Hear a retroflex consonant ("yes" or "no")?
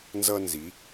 no